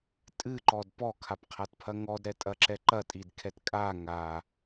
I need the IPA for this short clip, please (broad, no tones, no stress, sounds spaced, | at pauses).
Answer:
tʼ ɨ ǃ ɔ d p ɔ kʰ a p qʰ a t pʰ ɐ ŋ ɔ d ɾ ɛ tʼ ɐ ǁ ɛ ǃ ɐ tʼ i d kʰ ɛ t kʼ a ŋ a